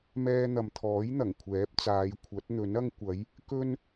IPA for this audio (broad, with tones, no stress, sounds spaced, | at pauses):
m ɛː˧ n̪ ɐ˨ m t̪ʰ ɔː˨˥ j n̪ ɐ˨˩ ŋ kʷʰ ɛː˨˥ p̚ t͡s aː˨˧ j kʷʰ ɐ˨˥ t̚ n̪ ɵ˨˥ n ɐ˥ ŋ kʷ ɐ˨˥ j | k ɵ˥ n